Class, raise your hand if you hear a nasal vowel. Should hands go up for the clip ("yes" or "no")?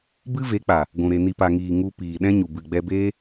yes